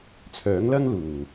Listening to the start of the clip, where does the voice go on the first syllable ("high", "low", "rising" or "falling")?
rising